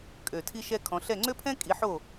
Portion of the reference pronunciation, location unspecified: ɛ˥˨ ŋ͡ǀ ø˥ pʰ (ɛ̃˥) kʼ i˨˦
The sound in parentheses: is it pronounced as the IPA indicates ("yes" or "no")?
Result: yes